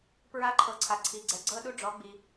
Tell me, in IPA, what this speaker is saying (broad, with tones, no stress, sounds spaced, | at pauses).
p ɹ a˧˥ ǃʰ ɤ˩˧ ǀʰ a˩ ǀʰ i˩ ɡ͡ǀ ɛ˩ ɡ͡ǀ ɤ˧ ɗ u˧ ɖ͡ʐ ɔ˩˧ ɡ͡b i˩